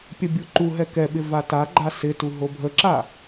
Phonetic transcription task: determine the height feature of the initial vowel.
mid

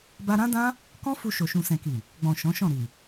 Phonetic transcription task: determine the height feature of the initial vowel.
low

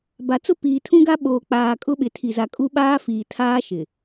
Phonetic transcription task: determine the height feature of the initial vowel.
low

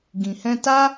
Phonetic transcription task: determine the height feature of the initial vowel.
high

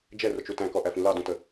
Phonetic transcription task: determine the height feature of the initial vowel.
mid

